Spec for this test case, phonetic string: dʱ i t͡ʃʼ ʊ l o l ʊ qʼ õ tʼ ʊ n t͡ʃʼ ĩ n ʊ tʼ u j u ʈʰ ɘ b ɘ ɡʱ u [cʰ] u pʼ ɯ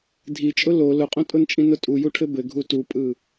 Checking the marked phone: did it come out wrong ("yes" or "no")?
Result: yes